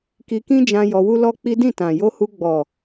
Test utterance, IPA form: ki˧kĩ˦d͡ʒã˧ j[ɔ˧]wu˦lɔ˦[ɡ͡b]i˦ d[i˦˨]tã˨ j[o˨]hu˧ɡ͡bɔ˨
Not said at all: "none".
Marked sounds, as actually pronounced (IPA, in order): ɔ˧, k͡p, ĩ˦˨, o˧

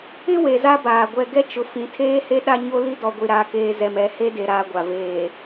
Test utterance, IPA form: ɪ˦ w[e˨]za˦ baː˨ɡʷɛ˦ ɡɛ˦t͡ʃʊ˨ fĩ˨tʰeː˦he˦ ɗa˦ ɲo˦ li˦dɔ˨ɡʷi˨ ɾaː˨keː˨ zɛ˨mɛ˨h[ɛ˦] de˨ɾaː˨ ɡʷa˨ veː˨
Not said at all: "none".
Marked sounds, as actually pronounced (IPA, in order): e˨, e˦

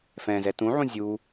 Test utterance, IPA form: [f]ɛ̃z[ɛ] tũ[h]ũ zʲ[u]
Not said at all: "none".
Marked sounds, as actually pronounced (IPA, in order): f, ɛ, ʕ, u

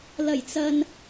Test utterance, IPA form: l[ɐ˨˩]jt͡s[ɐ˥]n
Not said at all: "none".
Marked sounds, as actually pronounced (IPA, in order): ɐ˨˩, ɐ˨

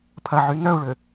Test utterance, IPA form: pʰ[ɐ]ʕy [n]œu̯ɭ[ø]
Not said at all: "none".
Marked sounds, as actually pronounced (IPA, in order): ɐ, n, ø

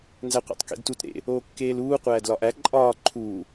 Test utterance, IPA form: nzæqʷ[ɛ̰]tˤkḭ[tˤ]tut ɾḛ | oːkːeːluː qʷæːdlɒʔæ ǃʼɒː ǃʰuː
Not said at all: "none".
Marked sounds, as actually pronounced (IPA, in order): ḛ, d

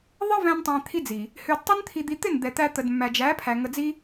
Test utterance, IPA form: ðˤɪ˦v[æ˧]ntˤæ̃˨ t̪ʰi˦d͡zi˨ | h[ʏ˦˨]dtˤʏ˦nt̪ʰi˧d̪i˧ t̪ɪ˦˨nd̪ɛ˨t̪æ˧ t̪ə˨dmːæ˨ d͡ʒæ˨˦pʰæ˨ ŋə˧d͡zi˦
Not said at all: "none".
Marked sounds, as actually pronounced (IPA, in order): æ̃˧, ʏ˧

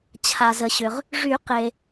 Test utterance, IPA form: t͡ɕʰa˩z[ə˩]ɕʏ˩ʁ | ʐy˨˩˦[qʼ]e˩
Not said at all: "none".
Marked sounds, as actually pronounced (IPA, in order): ə˩, q

